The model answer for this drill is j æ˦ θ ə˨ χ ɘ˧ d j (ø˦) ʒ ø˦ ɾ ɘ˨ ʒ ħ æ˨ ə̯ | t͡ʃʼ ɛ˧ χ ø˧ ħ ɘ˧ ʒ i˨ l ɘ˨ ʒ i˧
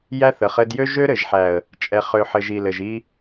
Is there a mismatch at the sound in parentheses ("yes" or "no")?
no